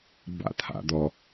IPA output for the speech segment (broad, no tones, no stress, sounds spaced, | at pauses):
b a̰ t̪ʰ a̰ d̪ ɔ